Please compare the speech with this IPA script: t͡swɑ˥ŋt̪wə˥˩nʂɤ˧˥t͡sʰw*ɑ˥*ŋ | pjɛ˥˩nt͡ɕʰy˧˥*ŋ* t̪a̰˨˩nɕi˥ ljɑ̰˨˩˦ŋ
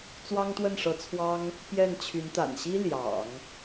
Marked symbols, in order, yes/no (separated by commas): yes, no